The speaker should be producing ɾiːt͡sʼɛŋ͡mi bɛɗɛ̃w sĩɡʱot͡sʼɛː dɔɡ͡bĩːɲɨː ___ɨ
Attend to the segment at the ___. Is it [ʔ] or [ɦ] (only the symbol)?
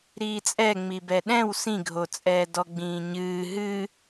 ɦ